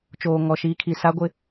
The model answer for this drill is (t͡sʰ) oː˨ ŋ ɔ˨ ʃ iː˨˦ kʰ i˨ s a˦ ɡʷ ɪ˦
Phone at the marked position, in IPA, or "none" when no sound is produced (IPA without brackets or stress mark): t͡ʃ